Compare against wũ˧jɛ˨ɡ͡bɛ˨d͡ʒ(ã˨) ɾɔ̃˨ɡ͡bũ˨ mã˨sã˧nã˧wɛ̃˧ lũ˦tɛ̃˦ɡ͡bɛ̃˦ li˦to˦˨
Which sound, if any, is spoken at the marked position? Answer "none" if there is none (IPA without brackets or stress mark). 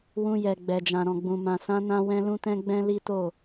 ã˨